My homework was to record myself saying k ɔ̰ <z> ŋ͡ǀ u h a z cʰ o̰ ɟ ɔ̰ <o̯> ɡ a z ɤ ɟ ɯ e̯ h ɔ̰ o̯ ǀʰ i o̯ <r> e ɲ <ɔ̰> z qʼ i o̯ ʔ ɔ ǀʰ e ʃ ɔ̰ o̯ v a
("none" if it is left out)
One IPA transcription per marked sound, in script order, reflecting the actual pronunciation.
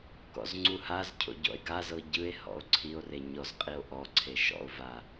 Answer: z, e̯, r, ɔ

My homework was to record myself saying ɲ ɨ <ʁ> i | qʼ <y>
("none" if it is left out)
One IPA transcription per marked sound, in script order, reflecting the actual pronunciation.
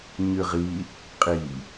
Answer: ʁ, i

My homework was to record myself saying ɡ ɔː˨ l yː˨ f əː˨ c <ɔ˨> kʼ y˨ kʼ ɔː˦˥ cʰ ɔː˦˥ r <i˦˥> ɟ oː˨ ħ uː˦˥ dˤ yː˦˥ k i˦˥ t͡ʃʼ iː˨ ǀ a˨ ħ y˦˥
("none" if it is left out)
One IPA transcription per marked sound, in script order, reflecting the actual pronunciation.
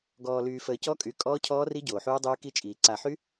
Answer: ɔ˦˥, i˦˥

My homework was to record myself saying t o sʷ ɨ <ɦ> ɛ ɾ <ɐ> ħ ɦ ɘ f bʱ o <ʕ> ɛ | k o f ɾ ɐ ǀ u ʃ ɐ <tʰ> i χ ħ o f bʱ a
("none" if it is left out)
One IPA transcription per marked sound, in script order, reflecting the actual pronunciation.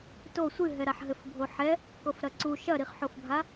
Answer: ɦ, a, ħ, ɾ

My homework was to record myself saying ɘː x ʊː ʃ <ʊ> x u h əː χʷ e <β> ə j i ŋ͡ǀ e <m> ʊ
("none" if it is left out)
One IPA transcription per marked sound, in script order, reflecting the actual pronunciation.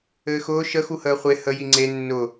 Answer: ə, h, nː

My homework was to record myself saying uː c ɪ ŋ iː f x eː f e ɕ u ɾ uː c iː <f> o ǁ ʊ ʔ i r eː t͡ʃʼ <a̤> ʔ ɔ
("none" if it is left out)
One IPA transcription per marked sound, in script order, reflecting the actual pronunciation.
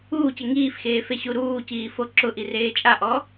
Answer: f, a

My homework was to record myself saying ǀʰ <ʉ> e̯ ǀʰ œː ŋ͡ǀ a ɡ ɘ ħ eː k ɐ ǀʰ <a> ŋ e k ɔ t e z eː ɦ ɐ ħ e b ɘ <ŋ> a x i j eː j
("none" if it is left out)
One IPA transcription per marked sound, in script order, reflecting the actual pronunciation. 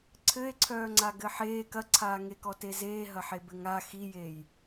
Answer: ɘ, aː, ŋ

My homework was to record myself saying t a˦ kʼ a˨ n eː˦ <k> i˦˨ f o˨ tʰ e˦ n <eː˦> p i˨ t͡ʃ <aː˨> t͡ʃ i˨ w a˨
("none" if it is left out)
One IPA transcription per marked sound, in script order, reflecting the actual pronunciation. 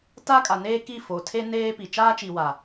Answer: k, eː˦, aː˦

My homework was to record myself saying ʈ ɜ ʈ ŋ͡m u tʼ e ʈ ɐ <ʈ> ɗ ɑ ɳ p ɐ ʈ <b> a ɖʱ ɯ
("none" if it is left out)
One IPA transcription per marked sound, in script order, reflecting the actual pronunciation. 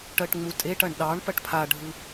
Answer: ɳ, pʰ

